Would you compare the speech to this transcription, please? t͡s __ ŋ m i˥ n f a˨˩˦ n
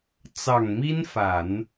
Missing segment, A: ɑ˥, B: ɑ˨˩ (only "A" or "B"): B